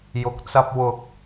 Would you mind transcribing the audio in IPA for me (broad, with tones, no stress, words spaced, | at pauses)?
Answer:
jʊ˨˥k̚t͡sɐ˧p̚ wʊ˨˥k̚